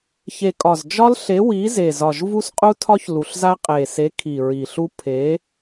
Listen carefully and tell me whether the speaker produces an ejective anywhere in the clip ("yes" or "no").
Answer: yes